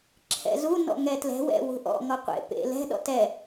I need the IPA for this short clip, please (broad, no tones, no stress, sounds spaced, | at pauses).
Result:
ǁʰ ɛ̰ z u n ɔ̰ ŋ ɛ t l ɛ̤ w ɛ̰ w ṳ ʔ ɔ̰ ŋ ɔ qʷ ḛ p ḛ l ɛ̤ ɗ ɔ̰ t ɛ